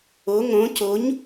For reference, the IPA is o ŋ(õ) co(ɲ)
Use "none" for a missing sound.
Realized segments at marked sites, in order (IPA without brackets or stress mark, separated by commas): õ, ɲ